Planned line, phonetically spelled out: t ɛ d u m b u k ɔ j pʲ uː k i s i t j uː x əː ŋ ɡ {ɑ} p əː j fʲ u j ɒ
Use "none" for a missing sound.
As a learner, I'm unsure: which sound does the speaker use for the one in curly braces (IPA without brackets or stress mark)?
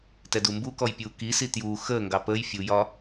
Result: ɑ